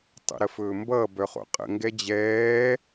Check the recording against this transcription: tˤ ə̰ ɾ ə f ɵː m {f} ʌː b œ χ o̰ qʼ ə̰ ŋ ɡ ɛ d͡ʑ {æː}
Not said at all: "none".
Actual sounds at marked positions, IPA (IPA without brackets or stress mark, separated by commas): b, ɛː